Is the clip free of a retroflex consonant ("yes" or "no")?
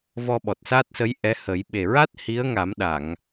yes